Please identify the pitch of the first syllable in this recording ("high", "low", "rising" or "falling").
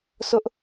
high